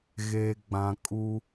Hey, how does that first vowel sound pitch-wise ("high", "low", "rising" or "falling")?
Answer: low